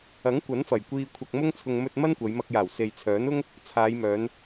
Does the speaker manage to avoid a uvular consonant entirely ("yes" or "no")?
yes